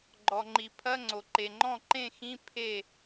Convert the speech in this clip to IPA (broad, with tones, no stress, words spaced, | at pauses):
ɡ͡ǃɔ˩ŋ͡ǃi˩pʰɐ˧˥˧ŋ͡ǀo˩ ǃe˩ŋ͡ǃɔ̃˥˩ǃẽ˥˩xĩ˧˥˧ pʰe˥˩